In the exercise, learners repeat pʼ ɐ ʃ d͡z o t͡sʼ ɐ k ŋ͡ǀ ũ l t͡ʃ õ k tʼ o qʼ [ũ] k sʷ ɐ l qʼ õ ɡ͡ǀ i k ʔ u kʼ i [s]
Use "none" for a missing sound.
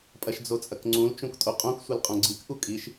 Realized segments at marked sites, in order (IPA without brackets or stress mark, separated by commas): õ, ʃ